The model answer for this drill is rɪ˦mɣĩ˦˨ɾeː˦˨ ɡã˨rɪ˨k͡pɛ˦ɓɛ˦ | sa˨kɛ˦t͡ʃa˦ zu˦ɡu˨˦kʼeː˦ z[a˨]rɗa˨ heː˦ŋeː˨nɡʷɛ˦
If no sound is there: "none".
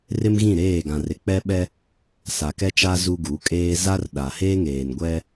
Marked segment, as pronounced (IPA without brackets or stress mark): a˦